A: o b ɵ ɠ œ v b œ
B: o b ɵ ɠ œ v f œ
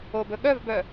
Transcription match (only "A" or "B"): A